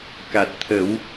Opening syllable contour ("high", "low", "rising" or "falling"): low